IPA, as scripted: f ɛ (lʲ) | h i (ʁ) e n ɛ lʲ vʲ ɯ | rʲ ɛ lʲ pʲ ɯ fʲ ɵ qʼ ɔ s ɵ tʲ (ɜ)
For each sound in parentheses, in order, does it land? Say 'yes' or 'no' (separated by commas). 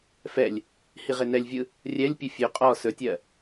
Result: yes, yes, yes